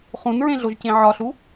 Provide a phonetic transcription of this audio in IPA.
χũnɹẽɮoʒcẽ ʕɒɬu

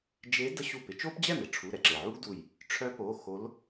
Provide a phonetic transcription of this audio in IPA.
d͡ʒe˧˥ də˥ɕu˥˩pɪ˥ t͡ʃo˥pd͡ʑɛ˥˩mɪ˩ʈ͡ʂʰu˩˧˩ ɾɛ˩ǁe˩ʕu˥ɡdu˧˩j | ʈ͡ʂʰœ˧˥po˩˧˩ xo˧˥l

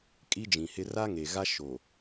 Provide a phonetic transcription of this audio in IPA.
kʼi˦d͡ʒĩ˨hɪ˦ ra˦ŋe˨ɣa˦ ʃo˨

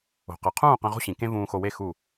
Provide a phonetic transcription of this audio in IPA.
o̤˩qɯ˩qʰũː˥˩ qẽ˧ʁo̤˥ɕĩ˩ kẽ˥vũː˧xo˧we˥˩ xu˥˩

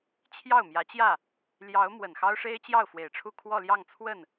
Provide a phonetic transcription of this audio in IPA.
t͡ɕʰjɑ˥˩ʊ̯mjä˧˥ t͡ɕjä˥˩ | ljɑ˧˥ʊ̯ mwə˨˩nxɑ˥ʊ̯ʂe˥ɪ̯ t͡ɕjɑ˥˩ʊ̯fwe˨˩ɪ̯ʈ͡ʂʰu˥˧ kʰwɔ˥˧ljɑ˥˧ŋt͡sʰwə˥˩n

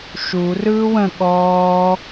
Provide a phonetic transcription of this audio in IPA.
ʃu rɯːwə̃ ɠɔː

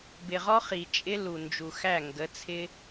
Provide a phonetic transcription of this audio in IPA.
bɪ˨ʁɔ˦ χi˨ t͡ʃʼɪ˦ lu˨ nd͡ʒu˨xæ˦˨ŋɡə˨˦t͡sʰɪ˦

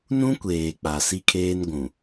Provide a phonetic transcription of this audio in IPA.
nũ˦kʷeː˨ k͡pa˨si˦kʰeː˦n ɡʷũ˨

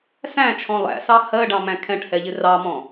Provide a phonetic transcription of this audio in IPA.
sæ̃t͡ʃʰɔ̃ lˠæ̰sɑ hɜɖɑ̃mæ̃ kʰɛ̃ʈhɛʎɪ rɑmɔ̃

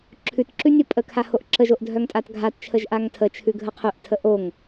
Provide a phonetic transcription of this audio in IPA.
ǁʰʉtǁʉ nʲopʼəkʰa hoʔǁəʒoʔ dʱœŋtʼatɡʱatt͡ʃʰəʒ ʔaŋtʰət͡ʃʰʉ ɡʱəqʰœʔtʰə ʔoŋ

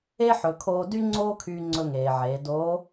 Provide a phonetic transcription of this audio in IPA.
e˥ ħɵ˩˧kʰoː˧dy˥ ŋ͡ǀoː˥kʰyː˧ŋ͡ǀɵ˧ ŋeː˩ʕeː˩˧ doː˧˥

